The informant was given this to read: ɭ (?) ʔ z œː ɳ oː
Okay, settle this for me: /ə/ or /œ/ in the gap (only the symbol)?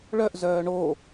œ